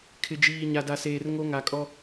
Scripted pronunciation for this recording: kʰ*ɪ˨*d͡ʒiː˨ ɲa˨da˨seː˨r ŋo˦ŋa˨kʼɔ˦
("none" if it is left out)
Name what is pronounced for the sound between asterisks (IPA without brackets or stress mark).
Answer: ɪ˨